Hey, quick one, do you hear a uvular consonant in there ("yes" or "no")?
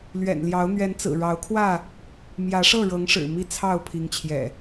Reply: no